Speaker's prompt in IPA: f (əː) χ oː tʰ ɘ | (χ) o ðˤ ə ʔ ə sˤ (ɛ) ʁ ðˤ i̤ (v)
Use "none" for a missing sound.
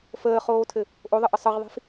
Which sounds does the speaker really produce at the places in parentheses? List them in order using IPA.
əː, ʔ, ə, f

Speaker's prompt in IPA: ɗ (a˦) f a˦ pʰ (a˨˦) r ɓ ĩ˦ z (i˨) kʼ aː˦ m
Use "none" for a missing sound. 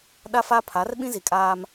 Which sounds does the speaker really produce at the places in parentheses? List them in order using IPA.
a˦, a˨˦, i˨

